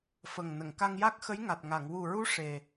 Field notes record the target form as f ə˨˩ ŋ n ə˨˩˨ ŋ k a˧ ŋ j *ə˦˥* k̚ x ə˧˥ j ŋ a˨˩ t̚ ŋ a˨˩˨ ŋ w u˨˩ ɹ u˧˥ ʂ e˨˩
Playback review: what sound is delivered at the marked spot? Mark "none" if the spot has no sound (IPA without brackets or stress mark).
a˦˥